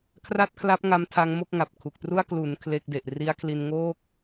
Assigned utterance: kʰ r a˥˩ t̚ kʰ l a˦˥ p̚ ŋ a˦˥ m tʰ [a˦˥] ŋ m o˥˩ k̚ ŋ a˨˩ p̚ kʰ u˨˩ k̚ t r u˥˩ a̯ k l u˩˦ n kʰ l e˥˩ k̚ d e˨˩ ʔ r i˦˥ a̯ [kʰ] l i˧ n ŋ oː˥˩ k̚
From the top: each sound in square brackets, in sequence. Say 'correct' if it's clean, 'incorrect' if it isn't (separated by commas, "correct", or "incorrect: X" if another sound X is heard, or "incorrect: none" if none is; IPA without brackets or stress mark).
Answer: correct, correct